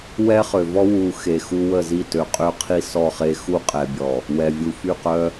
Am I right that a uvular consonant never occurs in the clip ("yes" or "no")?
no